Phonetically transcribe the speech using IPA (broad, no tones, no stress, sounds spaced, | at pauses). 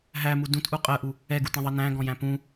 ɦ æ m u d ũ t ʔ u qʼ ɜ ʔ u | ɛ ɡ u t ɛ̃ ðˤ ʌ n æ̃ ɡ ɔ̃ j æ̃ p ũ